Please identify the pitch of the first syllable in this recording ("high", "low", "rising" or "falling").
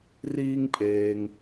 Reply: high